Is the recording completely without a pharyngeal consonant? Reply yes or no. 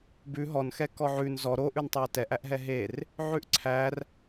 no